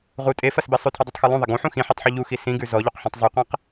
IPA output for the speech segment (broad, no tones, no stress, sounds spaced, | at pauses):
ʁ u tʼ e f ɐ s b e sˤ ʉ tʰ ʉ dˤ i tˤ x u lˠ ũ ðˤ ɐ ɡ ũ ħ ũ x ĩ ħ i tˤ ħ u ʎ u x i s ĩ ɡ ʉ z ɔ ʎ o q ħ ɔ̃ tˤ zˤ u qʷ ẽ q